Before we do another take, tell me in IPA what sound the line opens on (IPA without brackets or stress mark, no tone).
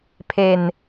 pʰ